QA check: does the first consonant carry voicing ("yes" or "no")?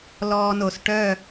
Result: yes